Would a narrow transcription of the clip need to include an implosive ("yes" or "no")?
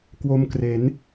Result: no